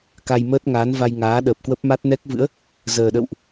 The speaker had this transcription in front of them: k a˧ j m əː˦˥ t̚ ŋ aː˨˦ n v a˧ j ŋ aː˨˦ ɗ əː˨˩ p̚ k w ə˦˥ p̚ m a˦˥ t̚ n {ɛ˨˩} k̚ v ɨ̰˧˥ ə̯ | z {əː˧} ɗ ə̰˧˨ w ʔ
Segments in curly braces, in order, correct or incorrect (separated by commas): incorrect, incorrect